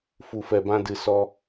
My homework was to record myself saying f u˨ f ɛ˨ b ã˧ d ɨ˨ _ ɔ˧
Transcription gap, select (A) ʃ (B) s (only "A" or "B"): B